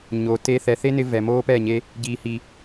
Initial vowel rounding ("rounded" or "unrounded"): rounded